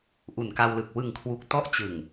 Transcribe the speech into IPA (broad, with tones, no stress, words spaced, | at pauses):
ʔu˨˩nka˧wlɯ˨˩k̚ wɯ˨˩ŋkʰwu˨˩k̚ tɔ˥˩ʔt͡ɕɯ˨˩ŋ